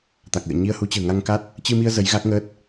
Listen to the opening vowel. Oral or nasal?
oral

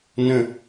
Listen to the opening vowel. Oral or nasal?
nasal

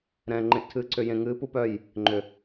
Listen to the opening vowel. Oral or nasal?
nasal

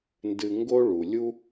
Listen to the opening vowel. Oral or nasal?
oral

